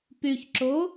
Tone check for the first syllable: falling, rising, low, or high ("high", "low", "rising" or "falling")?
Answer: low